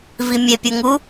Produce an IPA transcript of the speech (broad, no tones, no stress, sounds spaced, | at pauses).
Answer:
v i mʲ e pʲ u ŋ u